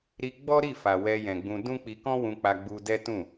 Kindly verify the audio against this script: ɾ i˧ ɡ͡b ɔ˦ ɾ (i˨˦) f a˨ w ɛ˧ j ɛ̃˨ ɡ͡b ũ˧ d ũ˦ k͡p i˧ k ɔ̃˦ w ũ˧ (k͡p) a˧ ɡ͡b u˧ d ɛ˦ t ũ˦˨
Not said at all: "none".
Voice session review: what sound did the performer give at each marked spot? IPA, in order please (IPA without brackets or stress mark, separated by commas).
i˦˨, k͡p